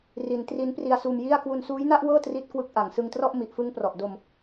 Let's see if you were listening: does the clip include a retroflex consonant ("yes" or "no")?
no